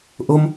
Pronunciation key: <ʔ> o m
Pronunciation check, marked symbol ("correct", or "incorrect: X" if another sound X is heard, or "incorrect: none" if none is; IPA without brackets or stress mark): correct